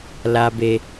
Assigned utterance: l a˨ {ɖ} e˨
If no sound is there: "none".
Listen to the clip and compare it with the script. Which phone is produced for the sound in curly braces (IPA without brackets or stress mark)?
b